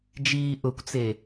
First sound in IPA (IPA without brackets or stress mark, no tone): d͡ʒ